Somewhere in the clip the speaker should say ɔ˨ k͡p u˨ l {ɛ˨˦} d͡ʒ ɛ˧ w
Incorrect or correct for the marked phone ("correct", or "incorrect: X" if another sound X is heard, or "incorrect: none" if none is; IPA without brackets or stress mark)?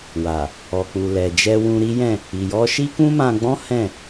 incorrect: ɛ˨